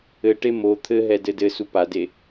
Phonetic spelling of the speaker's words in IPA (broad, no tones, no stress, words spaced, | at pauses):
ɘʈe mo t̪ʰɘɦɛ dɘdɘsu pade